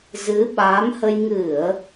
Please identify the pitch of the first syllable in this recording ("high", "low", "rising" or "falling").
rising